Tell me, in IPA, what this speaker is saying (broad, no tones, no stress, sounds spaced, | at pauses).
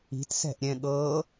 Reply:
i̤ t s ɛ̤ ʔ ɾʲ ɛ̃ ɠ ɤː